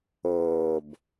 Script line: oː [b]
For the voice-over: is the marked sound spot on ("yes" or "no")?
yes